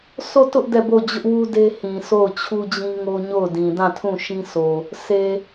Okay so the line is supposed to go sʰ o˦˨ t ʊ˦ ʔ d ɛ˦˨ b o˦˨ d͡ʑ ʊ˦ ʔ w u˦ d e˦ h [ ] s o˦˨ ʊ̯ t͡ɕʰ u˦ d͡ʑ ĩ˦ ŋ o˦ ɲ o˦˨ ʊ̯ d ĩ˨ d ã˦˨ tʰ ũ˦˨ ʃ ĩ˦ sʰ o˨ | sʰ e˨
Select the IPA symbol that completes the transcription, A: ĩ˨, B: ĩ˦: A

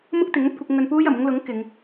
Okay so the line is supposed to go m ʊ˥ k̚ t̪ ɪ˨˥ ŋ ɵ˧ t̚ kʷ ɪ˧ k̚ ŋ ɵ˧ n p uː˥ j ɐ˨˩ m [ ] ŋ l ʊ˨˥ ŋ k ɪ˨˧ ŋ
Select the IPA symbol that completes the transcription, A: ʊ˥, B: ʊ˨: A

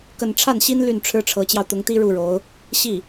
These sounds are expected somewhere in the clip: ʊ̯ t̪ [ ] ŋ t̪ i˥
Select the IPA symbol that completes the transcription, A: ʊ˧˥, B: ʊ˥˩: A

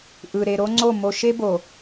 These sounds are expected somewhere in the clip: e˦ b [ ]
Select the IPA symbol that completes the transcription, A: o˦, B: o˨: B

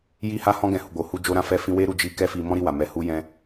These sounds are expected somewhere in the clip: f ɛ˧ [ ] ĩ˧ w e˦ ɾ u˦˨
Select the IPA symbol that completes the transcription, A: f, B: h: A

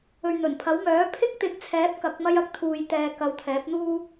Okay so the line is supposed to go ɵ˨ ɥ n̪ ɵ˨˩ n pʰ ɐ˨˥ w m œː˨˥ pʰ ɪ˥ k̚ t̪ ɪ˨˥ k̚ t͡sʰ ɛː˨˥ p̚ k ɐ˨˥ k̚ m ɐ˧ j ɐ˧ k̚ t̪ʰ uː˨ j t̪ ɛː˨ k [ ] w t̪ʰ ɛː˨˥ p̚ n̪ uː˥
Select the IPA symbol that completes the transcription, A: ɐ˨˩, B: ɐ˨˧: B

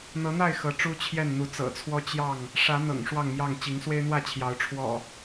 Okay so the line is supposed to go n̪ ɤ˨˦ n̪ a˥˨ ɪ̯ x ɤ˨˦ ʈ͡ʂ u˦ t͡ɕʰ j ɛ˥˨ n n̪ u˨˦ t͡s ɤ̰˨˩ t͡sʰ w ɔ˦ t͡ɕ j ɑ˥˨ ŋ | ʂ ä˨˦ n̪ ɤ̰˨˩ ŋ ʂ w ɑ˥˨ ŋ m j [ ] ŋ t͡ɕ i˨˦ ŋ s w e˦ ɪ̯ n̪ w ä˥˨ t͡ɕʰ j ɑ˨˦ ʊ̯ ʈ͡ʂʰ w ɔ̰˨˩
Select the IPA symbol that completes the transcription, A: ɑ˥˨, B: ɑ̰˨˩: A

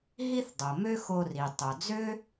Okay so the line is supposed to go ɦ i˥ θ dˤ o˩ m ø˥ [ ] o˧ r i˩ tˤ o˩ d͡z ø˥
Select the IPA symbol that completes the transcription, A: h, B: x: B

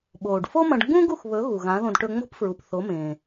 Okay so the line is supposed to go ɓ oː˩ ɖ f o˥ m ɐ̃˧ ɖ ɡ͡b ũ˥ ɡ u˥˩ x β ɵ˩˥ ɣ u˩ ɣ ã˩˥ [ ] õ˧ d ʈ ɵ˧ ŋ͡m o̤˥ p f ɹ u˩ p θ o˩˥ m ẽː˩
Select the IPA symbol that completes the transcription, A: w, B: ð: B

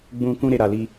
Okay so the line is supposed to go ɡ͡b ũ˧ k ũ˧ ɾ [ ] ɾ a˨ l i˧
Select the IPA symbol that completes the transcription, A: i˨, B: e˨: B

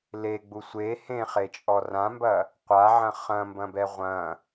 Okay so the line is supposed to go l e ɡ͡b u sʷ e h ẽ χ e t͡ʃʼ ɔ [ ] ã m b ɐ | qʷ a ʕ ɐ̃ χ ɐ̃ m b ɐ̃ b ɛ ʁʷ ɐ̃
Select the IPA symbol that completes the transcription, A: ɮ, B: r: B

